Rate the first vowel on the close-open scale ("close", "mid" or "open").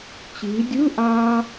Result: close